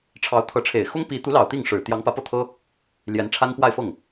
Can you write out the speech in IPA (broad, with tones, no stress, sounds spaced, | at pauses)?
ʈ͡ʂʰ ɑ˧˥ ʊ̯ t̪ʰ ɤ˧˥ ʈ͡ʂʰ e˨˩ ɪ̯ x ʊ˥ ŋ p i˧˥ t̪ u˧˥ l ɑ˨˩ ʊ̯ t̪ i˥˩ ŋ ʂ ɻ̩˨˩ t̪ j ɑ˧˥ ŋ p ä˧˥ p ɤ˥˩ t̪ʰ ɤ˥ | l j ɛ˧˥ n ʈ͡ʂʰ a˥ n p w a˥˧ ɪ̯ f ɤ˥˩ ŋ